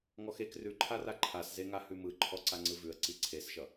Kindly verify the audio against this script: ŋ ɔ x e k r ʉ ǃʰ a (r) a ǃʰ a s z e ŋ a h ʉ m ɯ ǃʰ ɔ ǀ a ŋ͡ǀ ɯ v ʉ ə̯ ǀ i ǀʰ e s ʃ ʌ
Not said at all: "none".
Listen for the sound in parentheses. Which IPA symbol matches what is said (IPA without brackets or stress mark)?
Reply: r